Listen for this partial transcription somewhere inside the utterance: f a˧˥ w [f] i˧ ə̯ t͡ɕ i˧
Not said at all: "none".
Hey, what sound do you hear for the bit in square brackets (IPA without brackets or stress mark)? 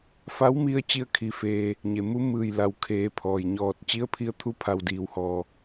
m